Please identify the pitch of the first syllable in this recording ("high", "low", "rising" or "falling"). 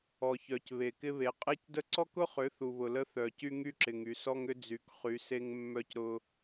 low